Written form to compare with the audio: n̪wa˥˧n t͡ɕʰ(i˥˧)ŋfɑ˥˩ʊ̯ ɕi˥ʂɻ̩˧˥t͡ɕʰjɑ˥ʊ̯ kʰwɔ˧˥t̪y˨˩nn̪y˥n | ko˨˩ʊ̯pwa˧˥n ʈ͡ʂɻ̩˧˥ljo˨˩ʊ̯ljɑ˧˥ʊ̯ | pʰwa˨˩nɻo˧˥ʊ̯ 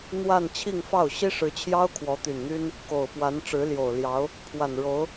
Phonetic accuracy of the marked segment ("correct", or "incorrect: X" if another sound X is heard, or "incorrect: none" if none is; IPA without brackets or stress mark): correct